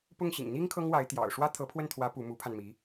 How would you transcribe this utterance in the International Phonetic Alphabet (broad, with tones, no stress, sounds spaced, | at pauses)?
p ʊ˥˩ ŋ ɕ ḭ˨˩ ŋ n̪ i˥ ŋ kʰ ɤ˥ ŋ w a˧˥ ɪ̯ t̪ j ɑ̰˨˩ ʊ̯ ʂ w ä˥ t̪ʰ ɤ˧˥ pʰ w ə˥˩ n t̪ʰ w ä˧˥ p u˧˥ m u˧˥ pʰ a˧ n m i˧˥